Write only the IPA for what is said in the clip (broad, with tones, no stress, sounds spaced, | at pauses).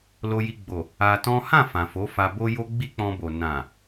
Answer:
l o˧ j i˧ ɡ͡b o˨ | a˧ t ɔ̃˦ h ã˦˨ f ã˨ f o˨˦ f a˧ b o˦ j o˦ ɡ͡b i˦ k͡p ɔ̃˧ b o˨ n ã˨